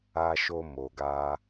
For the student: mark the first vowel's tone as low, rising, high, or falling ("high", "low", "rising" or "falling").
low